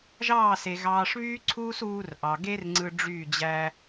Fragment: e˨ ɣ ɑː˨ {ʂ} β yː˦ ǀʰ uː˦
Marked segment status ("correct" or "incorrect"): correct